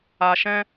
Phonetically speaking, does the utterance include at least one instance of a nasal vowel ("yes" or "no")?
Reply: yes